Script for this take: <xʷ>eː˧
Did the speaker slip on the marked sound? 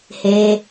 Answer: yes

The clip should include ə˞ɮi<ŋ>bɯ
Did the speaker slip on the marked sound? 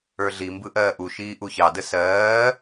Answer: yes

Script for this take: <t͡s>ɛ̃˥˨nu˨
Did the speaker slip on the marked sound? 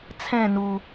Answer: yes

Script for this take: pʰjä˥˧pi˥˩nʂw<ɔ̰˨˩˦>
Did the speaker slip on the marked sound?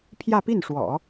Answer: no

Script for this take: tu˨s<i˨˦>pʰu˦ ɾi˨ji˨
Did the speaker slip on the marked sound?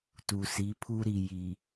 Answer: no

